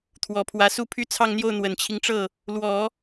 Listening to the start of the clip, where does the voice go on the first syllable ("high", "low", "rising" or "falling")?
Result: low